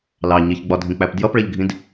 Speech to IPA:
lɑ ɲɪçɡ͡bɒdʱĩk͡pæp djʌpɭɜʎɡʱĩd

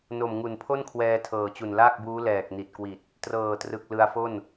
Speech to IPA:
no˨˩mŋu˨˩npʰo˥˩nkʰwɛː˧ tʰɤː˨˩t͡ɕu˨˩nlaː˥˩k̚buː˦˥ lɛː˨˩k̚ ni˨˩t̚kwi˨˩t̚ | trɤː˨˩trɯ˨˩k̚ lɯ˧a̯fo˥˩n

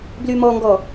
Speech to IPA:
blymɔŋɡɔ

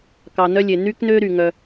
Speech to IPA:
kɑ˨nœ˦lʲe˨ ny˦k nø˦ɾy˨ ŋœ˦

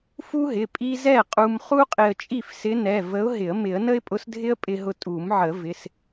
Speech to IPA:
fu˥ɦɪ˩˧˩ pʼi˥ zɛ˥˨qʼu˧m χu˥qʼɪ˧ə̯ t͡ʃʼi˥˨fsɪ˧˥nɛ˩˧˩ və˧˥ʊ̯ɦɪ˨˩˦ə̯ mɪ˨˩˦ə̯nə˥ɪ̯pʼʊ˧˥sdʱɪ˥ə̯ pʼɪ˧ɦʊ˧ tʼu˨˩˦mʕə˨˩˦ vɪ˩˧˩s

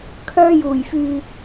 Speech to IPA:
kʰœː˧juː˨˩jfyː˨

